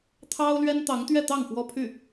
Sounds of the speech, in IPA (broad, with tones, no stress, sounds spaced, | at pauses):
t̪ʰ ɑ˥ ʊ̯ l ɥ ɛ˥ n t̪ ɑ˧˥ ŋ t̪ ɥ ɛ˥˧ t̪ ɑ˥˩ ŋ f w ɔ˥ pʰ y˥˩